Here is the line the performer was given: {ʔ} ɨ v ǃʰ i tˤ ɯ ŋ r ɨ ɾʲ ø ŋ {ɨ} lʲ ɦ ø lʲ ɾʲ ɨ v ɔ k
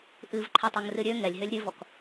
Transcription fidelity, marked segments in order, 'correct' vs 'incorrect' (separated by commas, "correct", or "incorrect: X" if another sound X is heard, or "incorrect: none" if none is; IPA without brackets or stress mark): correct, incorrect: ɛ